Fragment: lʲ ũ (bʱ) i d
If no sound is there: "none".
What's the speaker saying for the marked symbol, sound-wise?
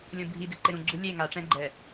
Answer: bʱ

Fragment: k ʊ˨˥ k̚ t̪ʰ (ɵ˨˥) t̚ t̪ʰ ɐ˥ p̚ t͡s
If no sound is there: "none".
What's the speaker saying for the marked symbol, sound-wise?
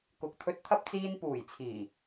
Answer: ɵ˧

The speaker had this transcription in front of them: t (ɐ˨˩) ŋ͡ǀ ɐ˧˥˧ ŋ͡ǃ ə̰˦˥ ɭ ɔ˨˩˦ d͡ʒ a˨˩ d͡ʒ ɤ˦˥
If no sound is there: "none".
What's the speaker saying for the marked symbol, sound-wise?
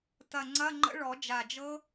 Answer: ɐ˨˩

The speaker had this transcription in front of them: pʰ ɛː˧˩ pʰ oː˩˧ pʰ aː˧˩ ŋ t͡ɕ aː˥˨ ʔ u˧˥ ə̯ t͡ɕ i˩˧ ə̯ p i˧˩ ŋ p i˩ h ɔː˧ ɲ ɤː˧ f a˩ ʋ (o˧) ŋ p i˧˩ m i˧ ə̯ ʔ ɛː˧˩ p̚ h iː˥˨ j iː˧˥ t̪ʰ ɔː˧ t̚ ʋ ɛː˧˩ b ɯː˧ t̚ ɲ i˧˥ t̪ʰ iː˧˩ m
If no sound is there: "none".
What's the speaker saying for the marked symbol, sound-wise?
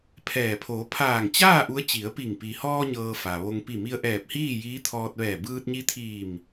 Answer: o˧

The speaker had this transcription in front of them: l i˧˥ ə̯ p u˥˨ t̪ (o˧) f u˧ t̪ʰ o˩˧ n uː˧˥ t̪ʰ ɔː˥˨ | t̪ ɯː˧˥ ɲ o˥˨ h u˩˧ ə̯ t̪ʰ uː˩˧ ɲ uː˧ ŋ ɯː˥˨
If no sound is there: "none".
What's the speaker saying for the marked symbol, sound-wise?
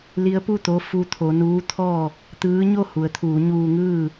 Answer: o˧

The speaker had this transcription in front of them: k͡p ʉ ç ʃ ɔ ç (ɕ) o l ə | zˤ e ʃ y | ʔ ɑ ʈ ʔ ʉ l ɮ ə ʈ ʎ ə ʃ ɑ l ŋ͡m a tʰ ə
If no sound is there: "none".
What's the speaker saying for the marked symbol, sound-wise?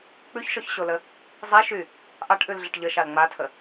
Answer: ɕ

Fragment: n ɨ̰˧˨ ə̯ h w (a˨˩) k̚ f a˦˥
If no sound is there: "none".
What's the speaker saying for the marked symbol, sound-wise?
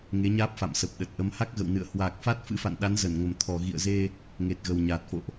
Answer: aː˨˩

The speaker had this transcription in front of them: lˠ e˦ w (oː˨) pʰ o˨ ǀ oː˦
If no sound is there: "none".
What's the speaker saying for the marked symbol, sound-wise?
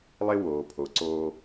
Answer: oː˨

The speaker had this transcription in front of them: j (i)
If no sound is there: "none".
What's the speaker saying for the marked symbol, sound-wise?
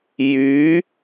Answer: y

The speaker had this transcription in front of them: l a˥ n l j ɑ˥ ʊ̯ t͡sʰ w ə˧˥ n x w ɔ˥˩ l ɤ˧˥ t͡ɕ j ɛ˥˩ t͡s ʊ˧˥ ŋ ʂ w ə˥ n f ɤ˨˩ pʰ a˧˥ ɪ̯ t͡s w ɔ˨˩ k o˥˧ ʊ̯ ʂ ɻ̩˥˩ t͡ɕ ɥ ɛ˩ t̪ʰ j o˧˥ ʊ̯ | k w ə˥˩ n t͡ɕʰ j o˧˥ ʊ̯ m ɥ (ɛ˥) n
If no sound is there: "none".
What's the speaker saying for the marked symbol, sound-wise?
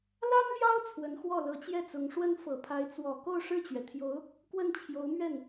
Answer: ɛ˥˩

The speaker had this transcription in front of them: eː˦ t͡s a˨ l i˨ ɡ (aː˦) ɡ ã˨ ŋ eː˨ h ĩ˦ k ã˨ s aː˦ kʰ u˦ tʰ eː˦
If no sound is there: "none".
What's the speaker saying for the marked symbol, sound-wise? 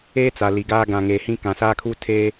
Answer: aː˦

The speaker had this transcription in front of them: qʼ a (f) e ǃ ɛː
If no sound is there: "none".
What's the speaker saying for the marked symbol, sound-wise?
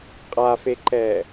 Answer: f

